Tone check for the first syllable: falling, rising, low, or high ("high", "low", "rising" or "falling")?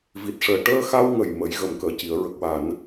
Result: low